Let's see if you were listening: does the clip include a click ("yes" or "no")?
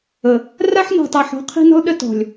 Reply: no